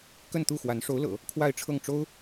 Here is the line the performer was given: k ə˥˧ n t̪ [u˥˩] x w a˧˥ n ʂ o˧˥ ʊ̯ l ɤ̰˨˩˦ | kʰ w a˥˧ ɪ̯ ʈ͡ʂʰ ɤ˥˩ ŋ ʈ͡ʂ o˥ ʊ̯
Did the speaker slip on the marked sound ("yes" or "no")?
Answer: no